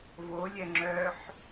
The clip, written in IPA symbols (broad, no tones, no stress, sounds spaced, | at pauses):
v o lʲ ɛ ŋ͡ǁ œ ħ